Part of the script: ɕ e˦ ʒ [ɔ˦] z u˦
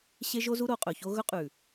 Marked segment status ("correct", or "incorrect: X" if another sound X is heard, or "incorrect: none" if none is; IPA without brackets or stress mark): incorrect: o˦